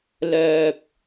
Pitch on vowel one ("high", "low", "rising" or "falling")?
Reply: low